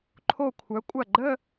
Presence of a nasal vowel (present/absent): absent